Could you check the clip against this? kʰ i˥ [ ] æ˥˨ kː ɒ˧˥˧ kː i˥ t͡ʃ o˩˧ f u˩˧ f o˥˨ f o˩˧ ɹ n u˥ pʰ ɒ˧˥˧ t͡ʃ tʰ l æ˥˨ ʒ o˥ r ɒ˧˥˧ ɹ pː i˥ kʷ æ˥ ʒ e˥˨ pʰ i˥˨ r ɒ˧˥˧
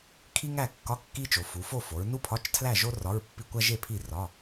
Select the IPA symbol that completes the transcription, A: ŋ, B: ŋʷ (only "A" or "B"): A